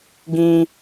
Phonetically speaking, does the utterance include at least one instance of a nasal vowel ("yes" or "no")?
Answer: yes